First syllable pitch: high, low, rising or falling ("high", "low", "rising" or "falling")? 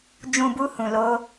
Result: low